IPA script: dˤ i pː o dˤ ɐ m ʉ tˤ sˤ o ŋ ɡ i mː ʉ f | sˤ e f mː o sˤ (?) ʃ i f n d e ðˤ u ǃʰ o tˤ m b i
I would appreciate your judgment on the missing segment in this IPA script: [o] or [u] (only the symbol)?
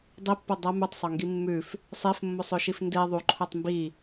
o